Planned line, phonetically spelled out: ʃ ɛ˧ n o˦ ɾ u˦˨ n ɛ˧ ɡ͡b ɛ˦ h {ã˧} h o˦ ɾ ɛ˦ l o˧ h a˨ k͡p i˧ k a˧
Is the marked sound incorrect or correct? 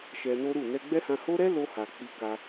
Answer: correct